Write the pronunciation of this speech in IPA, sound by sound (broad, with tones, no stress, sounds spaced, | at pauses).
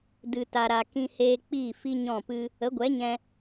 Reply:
d ɨ˨ t a˨ ɾ a˨ k ĩ˧ h eː˧ k͡p iː˦˨ f i˦ ɲ ɔ̃˦˨ p ɨ˦ | ə˨˦ ɡʷ ɛ˨˦ ɲ ɛ̃˧